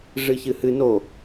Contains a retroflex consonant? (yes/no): yes